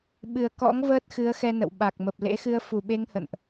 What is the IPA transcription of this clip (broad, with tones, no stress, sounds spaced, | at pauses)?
ɓ ɨ˨˩ ə̯ k ɔ̰˧˥ ŋ v əː˦˥ t̚ x ɨ˨˦ ə̯ x ɛ˧ n ə̰˧˨ w ɓ a˨˩ k̚ m ə˨˩ p̚ l ḛ˧˥ x ɨ˧ ə̯ f u˨˩ ɓ e˧ ŋ h ə̰˧˨ n ʔ